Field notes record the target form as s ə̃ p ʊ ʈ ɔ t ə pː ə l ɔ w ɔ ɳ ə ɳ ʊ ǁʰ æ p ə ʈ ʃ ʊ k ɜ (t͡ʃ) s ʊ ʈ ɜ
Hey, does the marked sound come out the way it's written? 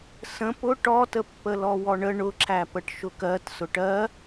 no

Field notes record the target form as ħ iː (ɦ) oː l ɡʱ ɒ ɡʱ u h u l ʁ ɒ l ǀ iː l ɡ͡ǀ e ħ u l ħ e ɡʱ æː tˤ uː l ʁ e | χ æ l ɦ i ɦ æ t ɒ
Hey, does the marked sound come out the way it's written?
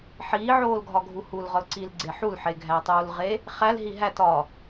no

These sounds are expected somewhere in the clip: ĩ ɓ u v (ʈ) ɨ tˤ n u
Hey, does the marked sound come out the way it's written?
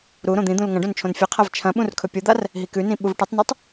yes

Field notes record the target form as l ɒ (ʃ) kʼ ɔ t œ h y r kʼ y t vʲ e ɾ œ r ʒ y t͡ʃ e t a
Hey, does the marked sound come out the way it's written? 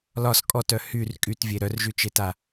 no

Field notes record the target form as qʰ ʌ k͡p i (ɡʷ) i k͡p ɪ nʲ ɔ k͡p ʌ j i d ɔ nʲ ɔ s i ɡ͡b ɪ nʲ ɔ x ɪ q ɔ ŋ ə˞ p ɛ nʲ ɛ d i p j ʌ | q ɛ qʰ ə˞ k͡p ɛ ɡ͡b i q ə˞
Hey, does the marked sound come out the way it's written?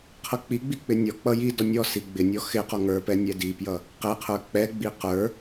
no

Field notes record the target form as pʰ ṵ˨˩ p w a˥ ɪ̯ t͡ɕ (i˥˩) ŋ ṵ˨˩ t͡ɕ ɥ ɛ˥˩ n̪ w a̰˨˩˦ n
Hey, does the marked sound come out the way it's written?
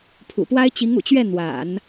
no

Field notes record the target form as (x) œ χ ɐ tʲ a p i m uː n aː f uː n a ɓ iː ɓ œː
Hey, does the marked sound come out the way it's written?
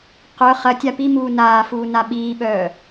no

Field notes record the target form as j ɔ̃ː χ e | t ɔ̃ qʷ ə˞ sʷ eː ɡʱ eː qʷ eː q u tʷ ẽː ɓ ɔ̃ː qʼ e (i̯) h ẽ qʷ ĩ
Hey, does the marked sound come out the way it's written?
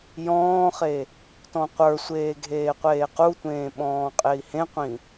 yes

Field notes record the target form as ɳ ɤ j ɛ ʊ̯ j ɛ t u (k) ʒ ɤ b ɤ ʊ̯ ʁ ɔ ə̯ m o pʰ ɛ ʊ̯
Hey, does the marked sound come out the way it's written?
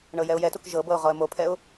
yes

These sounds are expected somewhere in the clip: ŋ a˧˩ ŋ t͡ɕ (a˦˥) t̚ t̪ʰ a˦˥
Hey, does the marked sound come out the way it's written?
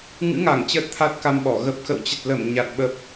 no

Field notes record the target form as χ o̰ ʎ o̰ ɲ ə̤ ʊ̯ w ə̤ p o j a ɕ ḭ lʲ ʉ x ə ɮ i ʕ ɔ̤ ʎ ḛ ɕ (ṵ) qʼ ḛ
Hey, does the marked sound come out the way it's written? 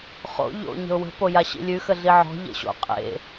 no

